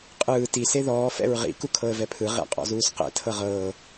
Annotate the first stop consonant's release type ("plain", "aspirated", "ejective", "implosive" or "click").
ejective